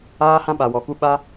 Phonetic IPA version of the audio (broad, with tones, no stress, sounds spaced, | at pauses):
aː˦ h ã˦ ɓ a˧ w ɔ˧ k u˦ ɓ a˦